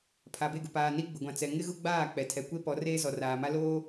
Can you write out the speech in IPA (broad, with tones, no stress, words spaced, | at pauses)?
pʰa˨be˦˨ɡʊ˨ paː˨ni˦ ɡ͡bʊ˨ɡʷã˨ t͡sɛ˨ ŋɪ˦ɣʊ˦ɡ͡baː˦˨ k͡pɛ˨ tʰɛ˨kʷe˦pɔ˨˦ reː˦zɔ˨raː˨ma˦ loː˦